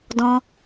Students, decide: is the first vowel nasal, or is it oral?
nasal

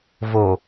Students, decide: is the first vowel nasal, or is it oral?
oral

